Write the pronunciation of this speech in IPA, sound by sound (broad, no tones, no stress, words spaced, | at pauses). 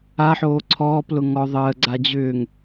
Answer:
aħoː ǀʰɔːplʊ ŋɔ ðˤəːɡ͡ǀa d͡ʑʏːŋ